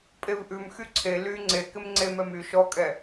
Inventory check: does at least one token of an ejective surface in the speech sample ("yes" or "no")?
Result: yes